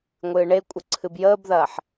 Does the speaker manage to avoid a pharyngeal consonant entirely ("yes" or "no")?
no